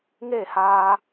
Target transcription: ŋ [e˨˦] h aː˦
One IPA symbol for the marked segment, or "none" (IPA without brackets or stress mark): e˦˨